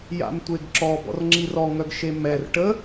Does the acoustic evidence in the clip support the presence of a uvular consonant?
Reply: no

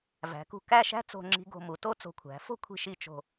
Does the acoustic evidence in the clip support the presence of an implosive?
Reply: no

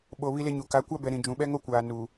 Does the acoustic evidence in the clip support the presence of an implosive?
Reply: yes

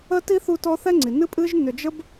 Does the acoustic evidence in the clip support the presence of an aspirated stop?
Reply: no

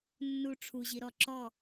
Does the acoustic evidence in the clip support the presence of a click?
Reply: yes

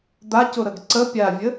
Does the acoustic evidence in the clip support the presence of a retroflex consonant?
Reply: no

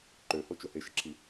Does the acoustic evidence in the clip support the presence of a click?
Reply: yes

